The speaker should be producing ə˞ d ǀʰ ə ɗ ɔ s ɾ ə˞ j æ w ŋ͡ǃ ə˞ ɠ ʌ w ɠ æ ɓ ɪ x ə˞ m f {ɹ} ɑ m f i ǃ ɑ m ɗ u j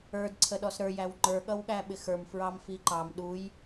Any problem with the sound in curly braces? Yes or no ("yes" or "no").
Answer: no